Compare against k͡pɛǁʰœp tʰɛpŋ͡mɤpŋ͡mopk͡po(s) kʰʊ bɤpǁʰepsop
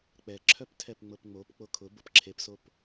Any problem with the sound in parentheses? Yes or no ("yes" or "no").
yes